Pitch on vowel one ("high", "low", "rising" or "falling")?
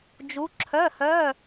rising